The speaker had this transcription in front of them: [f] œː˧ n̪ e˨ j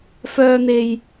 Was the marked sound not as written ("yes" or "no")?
no